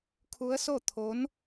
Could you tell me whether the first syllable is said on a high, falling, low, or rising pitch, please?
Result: rising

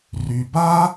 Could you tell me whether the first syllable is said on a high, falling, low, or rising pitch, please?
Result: low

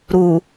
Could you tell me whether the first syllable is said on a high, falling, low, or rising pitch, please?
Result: low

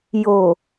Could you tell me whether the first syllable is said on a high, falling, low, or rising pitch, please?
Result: low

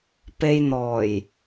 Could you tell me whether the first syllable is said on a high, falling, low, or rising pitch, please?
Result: low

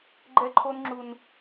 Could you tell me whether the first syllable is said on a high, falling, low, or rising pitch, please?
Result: high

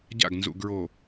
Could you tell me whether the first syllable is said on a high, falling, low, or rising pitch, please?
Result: falling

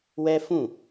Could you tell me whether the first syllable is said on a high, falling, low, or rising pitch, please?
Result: high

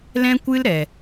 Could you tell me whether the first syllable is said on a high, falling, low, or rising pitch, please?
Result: high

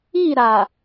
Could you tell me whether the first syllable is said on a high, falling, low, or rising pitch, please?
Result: falling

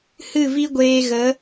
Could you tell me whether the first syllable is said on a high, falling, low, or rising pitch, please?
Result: falling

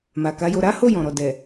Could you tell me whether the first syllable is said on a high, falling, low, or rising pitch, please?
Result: low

